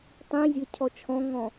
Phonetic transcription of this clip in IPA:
tˤĩzʲə˞ cʰɔt͡ʃʰɔ̃ŋɔ̃

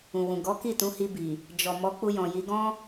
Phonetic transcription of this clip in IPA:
ũ˨wũ˨ ɡɔ˨˦ki˦˨ tũ˨˦hi˧bi˨ | d͡ʒɔ˨ mɔ˨˦k͡pu˧jɔ̃˨ji˨˦ ɡɔ̃˦

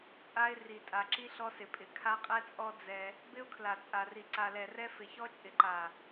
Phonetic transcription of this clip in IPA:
t͡sʼa˦ɪ̯ ri˨tʼa˨ǁi˦ ɬɔ˦sɪ˨pʼɪ˨ kʰa˦qʼɛ˦t͡sʼɔ˦ d͡zɛ˦ | bɪ˦ʊ̯kʰla˨t͡sʼa˨ri˨ ǀa˨lɛ˨rɛ˦ fɪ˨çɔ˦t͡ʃʼɪ˨ ǃa˨

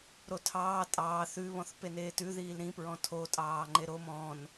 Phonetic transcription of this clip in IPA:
ɾotʰɑː tʼɑː θʉβɔ̃θ peneːtʉðiːl ɾĩpɹɔ̃ tʰotʼɑː ŋ͡ǃeɾom ɔ̃n

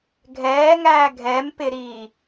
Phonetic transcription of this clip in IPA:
ɡʱɛːŋæː ɡʱɛmpɪɾiː

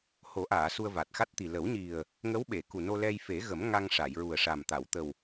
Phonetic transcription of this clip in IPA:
ho˨˩˦ʔaː˨˩˨ su˧ə̯va˨˩t̚xa˦˥t̚t̪i˨˩ lə˨˩˦wɲi˨˩ə̯ | ŋə˧˥wɓe˨˩˨ku˨˩ no˧lɛ˧j fe˨˩˦ɣə˨˩˦m ŋa˧ŋʂa˨˩˨jɹu˨˩ə̯ʂa˨˩m t̪a˨˩˨wt̪ə˨˩w

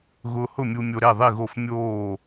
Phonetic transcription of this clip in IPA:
ɣʊː˧hʊ˥˨mʲu˧mʲo˧ ɾe˥˨ðˤi˥˨ɣo˥˨f mʲoː˥˨

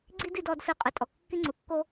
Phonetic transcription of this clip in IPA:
ɡ͡ǀi˥di˧d ɔ˧dsɯ˧ qʼɯ˩tʼɔ˩ kːi˥ŋ͡ǀu˩kːo˥

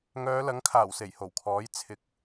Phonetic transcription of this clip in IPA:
ŋœː˨˧lɐ˨˥ŋkʰaː˨˩w se˨˩jho˨˩wkʰɔː˨˥j t͡sʰɪ˨˥k̚

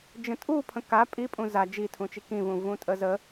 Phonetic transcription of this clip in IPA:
d͡ʒə̃tʼupʰə̃ ka pʼipʼũ za d͡ʒitʰũt͡ʃi kĩvũ vũtʼəzə

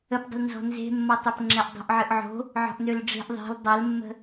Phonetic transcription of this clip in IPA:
əpdˤə̤l nzɔ̤nze̤mːɔtˤøp ŋ͡ǁɛʔdˤo̤ʔʕɨʔʕo̤ | ʕɔ̤ʔnølɖ͡ʐe̤ʔ ðˤe̤l dˤɜlmːə̤

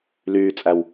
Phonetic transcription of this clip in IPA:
lyːt͡sʼæw

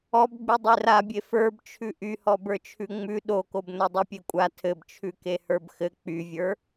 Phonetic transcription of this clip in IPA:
ɔbɡ͡by dˤerabʲe fə˞bt͡ʃʰʉ ʔyhɔbə˞t͡ʃʰʉ ŋ͡mʉ ɗokobno dˤʉpʲekʷʼa tʰɘbt͡ʃʰʉke hə˞bxɘ k͡pyvʲə˞

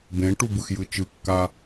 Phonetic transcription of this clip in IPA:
bẽʈu bɯxjɯt͡ʃɯkːa

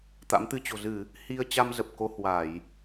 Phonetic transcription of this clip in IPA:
t̪a̰˧˥mt̪ɨ˧t͡ɕo̤˨˩ zɨ˧˩˨ | hi˧ə̯ t͡ɕa˧m zə˨˩p̚ko˧ hwa˧˩˨j

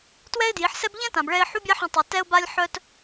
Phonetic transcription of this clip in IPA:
twɛ˦ɪ̯dji˨˦ħsɛ˦b ʎɛ̃˦ tã˨bɭɛ˧ɪ̯ ħu˦bʲa˦ħœ̃˧tˤi˨ tɛ˧ʊ̯ba˧lʲ ħœ˦t

